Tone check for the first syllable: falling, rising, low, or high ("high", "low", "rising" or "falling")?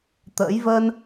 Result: rising